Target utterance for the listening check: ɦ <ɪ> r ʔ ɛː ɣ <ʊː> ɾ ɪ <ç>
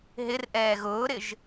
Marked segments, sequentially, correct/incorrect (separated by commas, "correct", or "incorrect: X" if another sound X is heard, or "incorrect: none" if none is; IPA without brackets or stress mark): correct, correct, incorrect: ʒ